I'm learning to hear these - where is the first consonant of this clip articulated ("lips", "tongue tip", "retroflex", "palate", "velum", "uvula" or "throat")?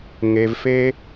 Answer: velum